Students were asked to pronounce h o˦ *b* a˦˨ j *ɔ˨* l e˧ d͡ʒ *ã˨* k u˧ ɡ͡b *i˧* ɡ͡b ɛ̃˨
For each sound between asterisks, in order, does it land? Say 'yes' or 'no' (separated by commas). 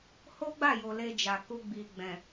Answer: no, no, no, no